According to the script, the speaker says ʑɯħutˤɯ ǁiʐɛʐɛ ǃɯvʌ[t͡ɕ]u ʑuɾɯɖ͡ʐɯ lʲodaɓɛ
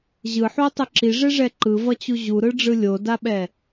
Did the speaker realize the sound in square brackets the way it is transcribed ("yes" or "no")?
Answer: yes